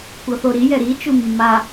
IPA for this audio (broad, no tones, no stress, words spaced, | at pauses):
kʷɤθoɾi jɛɾi t͡ʃumːa